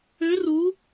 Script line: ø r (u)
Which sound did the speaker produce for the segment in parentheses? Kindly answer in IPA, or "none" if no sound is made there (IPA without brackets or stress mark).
u